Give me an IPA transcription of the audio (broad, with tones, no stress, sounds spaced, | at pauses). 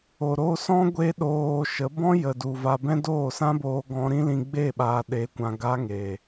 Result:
o˨ ɾ o˧ s ɔ̃˦ ɡʷ e˦ ɗ oː˧ ʃ ə˨˦ b ɔ̃˦ j ə˨ d u˨ v a˧ b ɛ̃˦ d oː˦˨ s ã˦ b oː˧ ɡ ɔ̃˧ ɾ ĩ˦ l ĩ˧ ɡ͡b e˦˨ ɓ aː˨ ɗ e˨˦ kʷ ã˨ ɡ a˧ ŋ e˨